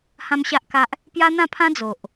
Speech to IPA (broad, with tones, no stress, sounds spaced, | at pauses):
h ã˦ m ɕ a˦ ʔ k a˦ ʔ | p j a˦ n̪ ã˥˧ pʰ ã˦ d͡z o˨ ʔ